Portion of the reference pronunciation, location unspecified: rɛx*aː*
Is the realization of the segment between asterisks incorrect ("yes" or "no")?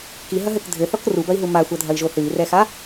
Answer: yes